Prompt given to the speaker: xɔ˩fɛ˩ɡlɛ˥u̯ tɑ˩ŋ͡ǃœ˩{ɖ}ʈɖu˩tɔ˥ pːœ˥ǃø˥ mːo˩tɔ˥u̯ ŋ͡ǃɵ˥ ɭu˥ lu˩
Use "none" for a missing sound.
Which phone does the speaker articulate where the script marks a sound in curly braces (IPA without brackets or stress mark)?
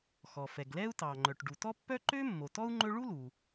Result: none